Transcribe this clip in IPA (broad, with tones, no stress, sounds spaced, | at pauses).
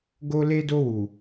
ɡ o˧ l e˧ d o˧ w u˨